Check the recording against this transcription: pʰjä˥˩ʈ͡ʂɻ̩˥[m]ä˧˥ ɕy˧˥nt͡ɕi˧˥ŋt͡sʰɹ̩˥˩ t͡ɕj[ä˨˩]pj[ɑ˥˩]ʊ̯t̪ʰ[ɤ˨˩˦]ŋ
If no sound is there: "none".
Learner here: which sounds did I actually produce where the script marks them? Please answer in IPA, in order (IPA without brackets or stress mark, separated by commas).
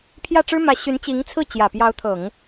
m, ä˨˩, ɑ˧˥, ɤ˨˩˦